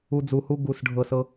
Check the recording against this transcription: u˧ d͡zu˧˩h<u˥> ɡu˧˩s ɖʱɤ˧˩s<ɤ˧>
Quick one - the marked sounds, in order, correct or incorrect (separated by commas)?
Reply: correct, correct